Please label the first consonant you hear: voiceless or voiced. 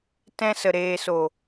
voiceless